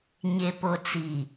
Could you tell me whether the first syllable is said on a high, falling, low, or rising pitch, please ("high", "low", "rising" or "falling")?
low